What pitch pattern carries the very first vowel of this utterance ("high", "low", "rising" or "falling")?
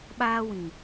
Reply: high